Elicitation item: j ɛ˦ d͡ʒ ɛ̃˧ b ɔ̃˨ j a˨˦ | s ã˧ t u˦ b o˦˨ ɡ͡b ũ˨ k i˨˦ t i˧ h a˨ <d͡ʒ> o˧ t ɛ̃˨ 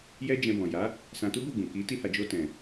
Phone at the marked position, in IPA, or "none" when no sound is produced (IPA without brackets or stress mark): d͡ʒ